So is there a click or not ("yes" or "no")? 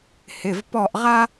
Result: no